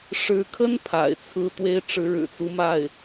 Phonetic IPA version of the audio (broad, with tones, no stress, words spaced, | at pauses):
ʂɻ̩˧˥kʰə˥n pʰa̰˨˩ɪ̯t͡sʰɹ̩˥˩t̪we˥ɪ̯ ʈ͡ʂɻ̩˧˥ɻɻ̩˨˩t͡su˧˥ma˥˩ɪ̯